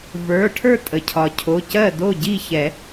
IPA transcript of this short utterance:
və˞˩˧˩ʈʰə˞˥˩ tʼə˩cʰɒ˩cʰo˩˧˩cɜ˥˩ do˥˩ɟi˥˩çɛ˨˩˦

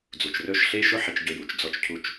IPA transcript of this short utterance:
d͡zu˨t͡ʃrɵ˦˨ʃ ɬe˦ʃɵ˦ ħe˧t͡ʃɟɵ˧ ju˨t͡ʃ d͡zɔ˧t͡ʃcʰu˦˨t͡ʃ

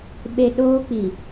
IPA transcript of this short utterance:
ɓe˨ ɗoː˦k͡pi˨

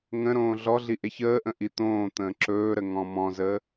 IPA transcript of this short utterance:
ŋə̃ ɾõːɮɔɮi ʔeçəːʔə̃ ʔit̪õːt̪ə̃ː ǁɵːɾə ŋɔ̃mɔ̃zəː

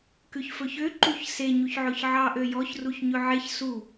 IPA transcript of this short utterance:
kʉçfɵçøǃuç se ɲuçʕɵçʕɑʔø jɔçruç ɲɵʕeç su

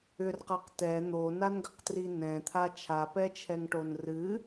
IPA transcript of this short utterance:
ʏrqɤq tɛ n̪onanɡəqtri nɛ̃t̪ʰa t͡ʃʰapɛt͡ʃʰɛŋʈon rɨ

